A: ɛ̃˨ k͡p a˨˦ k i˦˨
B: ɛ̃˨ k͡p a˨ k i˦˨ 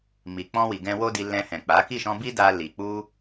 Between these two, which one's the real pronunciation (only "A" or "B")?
A